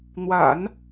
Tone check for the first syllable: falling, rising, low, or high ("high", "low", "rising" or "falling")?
low